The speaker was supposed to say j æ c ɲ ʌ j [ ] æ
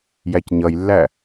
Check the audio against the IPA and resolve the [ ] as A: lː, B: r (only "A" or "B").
A